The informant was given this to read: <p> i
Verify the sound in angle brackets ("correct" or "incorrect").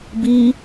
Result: incorrect